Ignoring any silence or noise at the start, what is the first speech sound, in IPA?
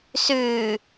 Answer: s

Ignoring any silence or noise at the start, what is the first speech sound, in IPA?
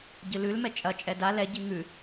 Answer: ɟ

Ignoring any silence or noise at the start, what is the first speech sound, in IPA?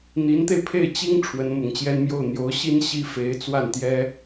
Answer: n̪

